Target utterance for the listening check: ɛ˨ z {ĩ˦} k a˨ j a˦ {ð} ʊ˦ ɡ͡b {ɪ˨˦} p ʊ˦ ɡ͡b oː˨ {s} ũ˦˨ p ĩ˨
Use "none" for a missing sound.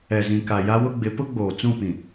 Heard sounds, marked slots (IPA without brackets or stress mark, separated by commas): ĩ˨, w, ɪ˨˦, t͡s